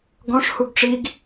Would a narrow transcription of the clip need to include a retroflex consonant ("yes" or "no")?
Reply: yes